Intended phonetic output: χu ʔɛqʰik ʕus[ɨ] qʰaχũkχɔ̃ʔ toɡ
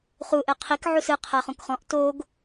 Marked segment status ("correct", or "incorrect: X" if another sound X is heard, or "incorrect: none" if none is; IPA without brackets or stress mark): correct